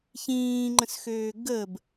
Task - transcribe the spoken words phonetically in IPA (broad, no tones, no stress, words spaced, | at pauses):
çĩːŋ͡ǃə̃sxøː ɡəb